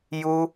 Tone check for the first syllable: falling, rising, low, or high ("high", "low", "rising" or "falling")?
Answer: high